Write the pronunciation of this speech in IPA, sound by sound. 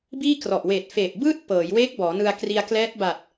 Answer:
biː˥˩krɔ˨˩ʔweː˨˩t̚ feː˨˩p̚bɯː˥˩t̚pɤː˩˦jwe˦˥k̚ bɔː˩˦nɯ˧a̯kri˧a̯ klɛː˦˥t̚ba˨˩t̚

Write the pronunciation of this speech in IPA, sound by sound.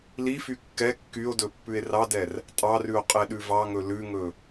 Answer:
lify kːɛ kːyo̯dɵ pːʉe̯rɑdɛr | tʼɑrʉo̯ qʼɛɗʉvɑŋɵ lʉŋɵ

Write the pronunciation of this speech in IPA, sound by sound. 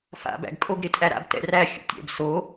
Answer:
fa̰ bæ̰ɡkʼoɡ ɾɪtʼæɾa̰b tɛ̰ræ xʲṵtʲɛ̰b so

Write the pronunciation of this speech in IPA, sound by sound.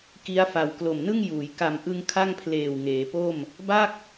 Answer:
ki˦˥a̯fa˨˩w klo˨˩mnɯ˥˩ŋjuː˩˦j ka˨˩mʔɯ˧ŋ kʰa˥˩ŋpʰleː˨˩w ŋeː˩˦po˥˩m | ba˥˩k̚

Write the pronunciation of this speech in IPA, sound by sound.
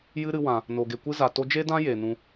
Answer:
jɨ˦ ɾɨ˧wã˨ | no˨ ɡe˨kʷɨ˦za˨ to˦ d͡ʒe˦dã˦ je˨ nũ˦

